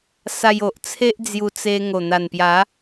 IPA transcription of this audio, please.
s a˧ j o˨ ʔ t͡sʰ e˦ ʔ d͡z j u˧ t͡s e˧ ŋ o˨˩ n̪ a˨˩ n p j a˨˦

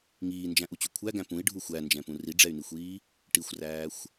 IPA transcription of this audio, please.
ŋ iː n d͡ʒ æ̃ ʔ u t͡ɕ u kʷʰ æ ɡ æ̃ p ũ i̯ ɖʱ u xʷ æ n d͡ʒ ɛ̃ p ũ r i ɖ͡ʐ ɛ y̯ n i xʷ iː | ʈ i xʷ r æː xʷ

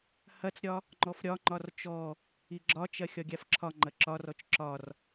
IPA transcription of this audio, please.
h ɐ t͡s ɾʲ ɒ | ŋ͡ǃ ɔ f ɾʲ ɒ ŋ͡ǃ ɒ r t͡ʃ ɔ | i ɡ͡ǁ ɒ t͡ʃ ɐ xʲ ɒ ɡʲ a f ǁʰ ɒ ŋ͡ǃ ɐ ǁ ɒ r ɔ t͡ʃ ǁ ɒ r

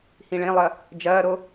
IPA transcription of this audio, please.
h ĩ ɭ ẽ lˠ ɐ | d͡ʒ ɐː ɾ o

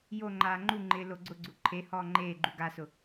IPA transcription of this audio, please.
j o ŋ͡ǃ aː ŋ͡ǃ u ŋ͡ǃ ɪː l o ɡ͡ǀ ʊ ɡ͡ǀ u ǃʰ e h ɔː ŋ͡ǃ eː ɡ͡ǃ u ɡ a s ʊ

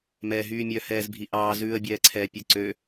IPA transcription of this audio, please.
m ɛː ɦ yː mʲ œ h ɛː z bʱ i ʔ ɑː z ʉː ə̯ bʲ ɛː ǀʰ ɛː pʲ ʉ ǀ ø

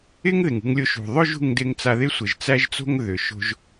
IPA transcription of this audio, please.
ɪ˥ ŋ ð ɪ˩ ŋ ṳ˧ ŋ lʲ o˧ ʃ ṳ˩ ðˤ ɵ˥ ʒ ṳ˧ ŋ d ɪ˧ ŋ t͡s a˧ ð ɪ˥ sʷ ɪ˩ ʒ t͡s æ˥ ʒ t͡s o̤˥ ŋ ð ʏ˩ ʃ o̤˧ ʒ

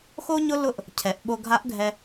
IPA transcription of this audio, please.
x o˥ ɲ ʊ˥ l ʊ˥ ʔ | cʰ ɛ˩˧ ʔ ɓ o˧ ɡʱ a˧˥ ʔ ɡʱ ɛ˧

